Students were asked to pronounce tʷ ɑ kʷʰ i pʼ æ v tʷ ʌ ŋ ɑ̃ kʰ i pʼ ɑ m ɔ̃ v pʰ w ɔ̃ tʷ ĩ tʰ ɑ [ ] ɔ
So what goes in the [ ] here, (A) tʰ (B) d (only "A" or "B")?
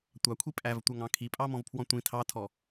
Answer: A